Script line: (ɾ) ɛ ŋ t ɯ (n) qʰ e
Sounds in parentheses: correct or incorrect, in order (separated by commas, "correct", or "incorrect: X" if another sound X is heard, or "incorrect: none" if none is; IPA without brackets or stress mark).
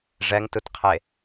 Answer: incorrect: ʐ, incorrect: t